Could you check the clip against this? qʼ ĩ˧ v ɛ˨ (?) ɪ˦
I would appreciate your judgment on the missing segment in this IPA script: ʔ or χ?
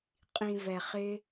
χ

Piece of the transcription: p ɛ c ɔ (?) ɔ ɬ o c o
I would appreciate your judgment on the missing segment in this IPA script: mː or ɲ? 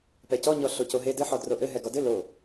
ɲ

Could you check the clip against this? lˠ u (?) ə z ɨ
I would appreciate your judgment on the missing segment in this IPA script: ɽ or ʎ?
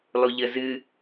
ʎ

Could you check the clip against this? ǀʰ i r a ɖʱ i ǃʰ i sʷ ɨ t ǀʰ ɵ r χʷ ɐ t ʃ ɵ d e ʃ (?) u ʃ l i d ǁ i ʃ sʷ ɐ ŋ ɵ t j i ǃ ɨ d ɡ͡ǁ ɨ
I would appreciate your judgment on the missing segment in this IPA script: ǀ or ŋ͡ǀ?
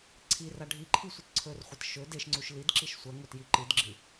ŋ͡ǀ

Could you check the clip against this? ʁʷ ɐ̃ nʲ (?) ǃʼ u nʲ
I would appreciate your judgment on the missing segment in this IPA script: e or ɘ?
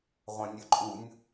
ɘ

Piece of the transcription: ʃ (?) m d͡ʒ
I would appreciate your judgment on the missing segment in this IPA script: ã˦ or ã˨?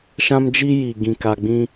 ã˦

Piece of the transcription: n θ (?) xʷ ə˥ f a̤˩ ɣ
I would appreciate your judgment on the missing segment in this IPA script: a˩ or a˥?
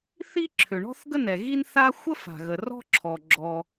a˥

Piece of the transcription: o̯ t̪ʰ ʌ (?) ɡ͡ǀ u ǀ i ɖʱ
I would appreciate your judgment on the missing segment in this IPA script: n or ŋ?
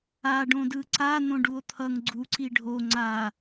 ŋ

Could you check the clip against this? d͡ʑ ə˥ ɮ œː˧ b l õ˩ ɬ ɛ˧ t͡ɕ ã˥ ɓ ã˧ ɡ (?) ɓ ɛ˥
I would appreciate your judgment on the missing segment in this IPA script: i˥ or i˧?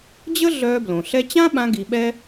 i˧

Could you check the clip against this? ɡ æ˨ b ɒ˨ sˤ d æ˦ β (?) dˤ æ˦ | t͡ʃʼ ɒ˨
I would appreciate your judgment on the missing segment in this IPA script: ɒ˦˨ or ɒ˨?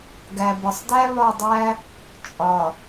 ɒ˦˨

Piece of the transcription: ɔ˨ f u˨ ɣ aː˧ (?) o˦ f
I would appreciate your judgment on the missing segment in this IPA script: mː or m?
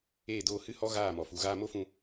m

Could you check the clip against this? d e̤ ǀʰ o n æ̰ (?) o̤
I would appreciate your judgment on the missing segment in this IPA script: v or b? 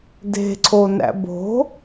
b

